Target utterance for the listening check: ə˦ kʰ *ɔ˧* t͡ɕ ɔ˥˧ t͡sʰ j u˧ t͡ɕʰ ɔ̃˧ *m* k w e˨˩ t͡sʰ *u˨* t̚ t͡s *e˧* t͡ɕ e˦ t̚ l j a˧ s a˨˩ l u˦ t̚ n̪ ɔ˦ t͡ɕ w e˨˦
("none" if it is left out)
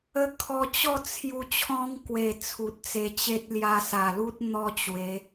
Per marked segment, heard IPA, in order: ɔ˧, ŋ, u˨, e˧

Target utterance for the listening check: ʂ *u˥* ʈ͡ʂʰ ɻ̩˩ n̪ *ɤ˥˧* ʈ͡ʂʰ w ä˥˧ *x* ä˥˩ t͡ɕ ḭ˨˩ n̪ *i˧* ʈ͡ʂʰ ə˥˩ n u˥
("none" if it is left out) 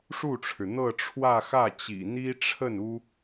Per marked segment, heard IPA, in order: u˥˩, ɤ˥˧, x, i˥

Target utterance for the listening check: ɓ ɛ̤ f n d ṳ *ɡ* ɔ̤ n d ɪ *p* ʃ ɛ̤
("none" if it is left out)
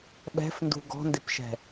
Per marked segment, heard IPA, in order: ɡ, p

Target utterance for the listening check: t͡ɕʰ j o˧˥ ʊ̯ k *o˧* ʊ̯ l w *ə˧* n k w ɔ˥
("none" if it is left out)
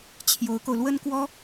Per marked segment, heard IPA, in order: o˧, ə˥

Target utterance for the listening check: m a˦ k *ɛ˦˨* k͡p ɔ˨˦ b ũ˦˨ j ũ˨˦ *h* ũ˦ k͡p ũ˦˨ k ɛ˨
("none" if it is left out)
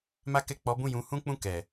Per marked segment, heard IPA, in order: ɛ˦˨, h

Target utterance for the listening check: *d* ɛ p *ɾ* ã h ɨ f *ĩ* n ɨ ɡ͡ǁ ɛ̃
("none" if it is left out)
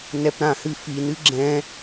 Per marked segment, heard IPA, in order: n, ɾ, i

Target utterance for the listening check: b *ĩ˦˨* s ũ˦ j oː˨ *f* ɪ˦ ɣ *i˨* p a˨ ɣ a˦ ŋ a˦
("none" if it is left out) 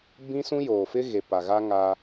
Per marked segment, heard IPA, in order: ĩ˦, f, e˨

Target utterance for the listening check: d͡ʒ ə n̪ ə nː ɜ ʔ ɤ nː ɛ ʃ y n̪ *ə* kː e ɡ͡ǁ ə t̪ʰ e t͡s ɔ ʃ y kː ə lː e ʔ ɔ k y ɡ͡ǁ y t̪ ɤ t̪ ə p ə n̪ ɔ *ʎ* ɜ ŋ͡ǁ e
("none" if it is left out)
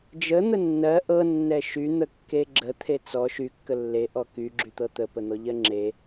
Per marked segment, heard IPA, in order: ə, ʎ

